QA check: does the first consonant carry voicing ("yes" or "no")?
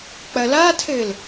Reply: no